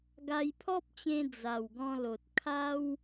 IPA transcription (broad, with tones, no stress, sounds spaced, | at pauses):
ɡ a˧ j pʰ ɔ˦ p̚ t͡ɕ ẽ˧ d͡z a˨˩ w ɡ ɔ̃˧ l o˨ t̚ kʰ a˦ w